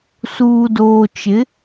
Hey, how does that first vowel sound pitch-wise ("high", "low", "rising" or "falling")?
low